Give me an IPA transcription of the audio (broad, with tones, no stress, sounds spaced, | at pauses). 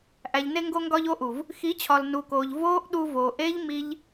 ʔ æ˨ ʎ n e˧ ŋ ɡ o˧ ŋ ɡ ɒ˧ ʎ o˧ ʔ u˨ v | x i˨˦ t͡ɕʰ ɒ˨ l n u˨ k oː˨ ʎ v oː˦ ʔ ɗ u˧ v oː˨ ʔ eː˦ ʎ m i˧ ʎ